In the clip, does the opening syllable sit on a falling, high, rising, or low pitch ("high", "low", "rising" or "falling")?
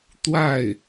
falling